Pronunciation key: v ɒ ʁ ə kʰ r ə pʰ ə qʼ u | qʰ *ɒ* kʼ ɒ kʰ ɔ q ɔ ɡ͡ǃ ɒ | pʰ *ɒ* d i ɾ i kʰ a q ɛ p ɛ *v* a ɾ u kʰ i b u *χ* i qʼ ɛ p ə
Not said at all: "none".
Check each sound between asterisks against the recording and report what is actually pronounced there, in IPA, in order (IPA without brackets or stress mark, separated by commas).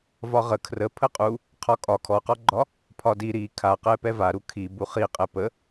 ɒ, ɒ, v, χ